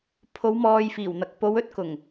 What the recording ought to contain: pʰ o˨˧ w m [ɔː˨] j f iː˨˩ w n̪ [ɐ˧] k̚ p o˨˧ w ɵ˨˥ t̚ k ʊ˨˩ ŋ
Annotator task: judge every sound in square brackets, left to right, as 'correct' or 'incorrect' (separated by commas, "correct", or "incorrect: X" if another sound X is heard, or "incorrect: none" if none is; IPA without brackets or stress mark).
correct, incorrect: ɐ˨